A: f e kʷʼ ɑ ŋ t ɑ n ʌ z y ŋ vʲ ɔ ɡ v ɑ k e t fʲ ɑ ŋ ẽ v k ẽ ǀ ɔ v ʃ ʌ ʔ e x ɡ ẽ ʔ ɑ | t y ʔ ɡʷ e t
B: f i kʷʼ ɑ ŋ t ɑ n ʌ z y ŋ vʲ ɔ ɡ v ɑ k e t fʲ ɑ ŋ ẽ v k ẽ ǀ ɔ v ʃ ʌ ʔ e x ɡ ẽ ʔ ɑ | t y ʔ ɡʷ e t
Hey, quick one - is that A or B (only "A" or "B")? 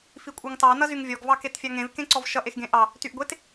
B